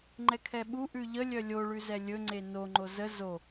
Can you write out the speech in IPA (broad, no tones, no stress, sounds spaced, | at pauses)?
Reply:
ŋ͡ǃ ɛ kʰ ɛ ɓ u ʔ ʉ ʎ ə lʲ œ lʲ o ɭ ʉ z ɛ lʲ ɵ ŋ͡ǀ e n o ŋ͡ǃ o z ə z o